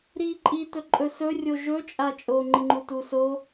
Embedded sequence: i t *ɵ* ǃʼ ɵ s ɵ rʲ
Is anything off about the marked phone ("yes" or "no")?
no